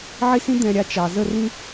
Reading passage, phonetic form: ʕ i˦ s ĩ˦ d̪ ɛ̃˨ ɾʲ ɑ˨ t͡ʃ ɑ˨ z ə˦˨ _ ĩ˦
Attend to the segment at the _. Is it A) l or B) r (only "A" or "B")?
B